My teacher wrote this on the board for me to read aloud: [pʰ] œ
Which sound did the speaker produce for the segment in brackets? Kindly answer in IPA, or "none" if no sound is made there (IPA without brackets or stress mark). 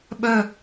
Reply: ɓ